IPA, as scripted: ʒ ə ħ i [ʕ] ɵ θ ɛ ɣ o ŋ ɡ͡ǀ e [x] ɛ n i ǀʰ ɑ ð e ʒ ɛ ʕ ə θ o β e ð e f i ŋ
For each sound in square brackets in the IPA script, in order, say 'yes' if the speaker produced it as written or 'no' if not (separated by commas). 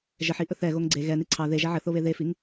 no, no